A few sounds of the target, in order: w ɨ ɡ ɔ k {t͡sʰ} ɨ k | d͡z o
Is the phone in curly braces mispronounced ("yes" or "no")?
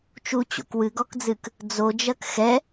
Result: yes